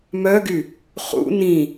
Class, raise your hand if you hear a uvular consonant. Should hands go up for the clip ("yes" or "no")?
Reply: yes